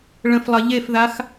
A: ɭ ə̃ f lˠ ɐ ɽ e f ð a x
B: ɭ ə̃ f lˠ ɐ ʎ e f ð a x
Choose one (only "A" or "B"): B